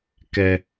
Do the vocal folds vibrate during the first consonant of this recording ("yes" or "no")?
no